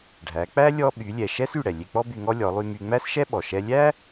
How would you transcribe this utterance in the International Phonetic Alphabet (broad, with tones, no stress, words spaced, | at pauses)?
ɖʱæ˩˧k͡pæ˥ lʲɔ˧ɓy˩˧lʲɛ˩ ʃɛ˥sy˩ ɽɛ˩lʲe˧k͡pɔ˥ by˧ŋɔ˥ lʲɔ˩˧lˠy˧my˧ ŋ͡mæ˥sʃɛ˥ɓɔ˩ ʃɛ˧lʲæ˥